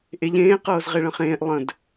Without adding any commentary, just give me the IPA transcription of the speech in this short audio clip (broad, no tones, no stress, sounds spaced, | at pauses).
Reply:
ʔ e ʎ ẽː q ɤː z ʁ e ɭ ə̃ χ ẽː ʔ lˠ ə̃ d